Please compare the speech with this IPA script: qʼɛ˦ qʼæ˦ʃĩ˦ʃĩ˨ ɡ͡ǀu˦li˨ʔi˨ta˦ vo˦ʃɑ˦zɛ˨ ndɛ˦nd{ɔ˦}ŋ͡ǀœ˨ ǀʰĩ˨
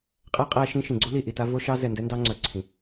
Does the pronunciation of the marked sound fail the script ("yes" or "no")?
yes